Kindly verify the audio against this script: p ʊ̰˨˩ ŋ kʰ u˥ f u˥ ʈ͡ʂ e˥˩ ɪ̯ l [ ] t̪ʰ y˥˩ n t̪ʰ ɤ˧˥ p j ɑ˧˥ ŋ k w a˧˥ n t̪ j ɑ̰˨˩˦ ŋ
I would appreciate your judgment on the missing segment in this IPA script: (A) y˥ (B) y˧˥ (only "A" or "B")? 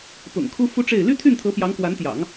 A